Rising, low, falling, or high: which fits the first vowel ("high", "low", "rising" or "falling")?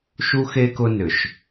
high